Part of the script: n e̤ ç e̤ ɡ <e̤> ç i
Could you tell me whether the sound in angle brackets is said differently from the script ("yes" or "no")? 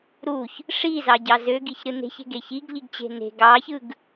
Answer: yes